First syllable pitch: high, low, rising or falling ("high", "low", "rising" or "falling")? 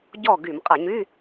falling